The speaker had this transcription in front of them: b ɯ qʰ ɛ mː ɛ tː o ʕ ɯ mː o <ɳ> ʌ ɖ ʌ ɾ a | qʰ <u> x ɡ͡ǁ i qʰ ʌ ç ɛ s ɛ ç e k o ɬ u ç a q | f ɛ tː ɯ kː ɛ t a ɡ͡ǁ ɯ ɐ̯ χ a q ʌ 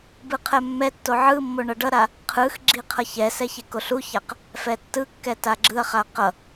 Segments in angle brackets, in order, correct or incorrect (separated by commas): correct, incorrect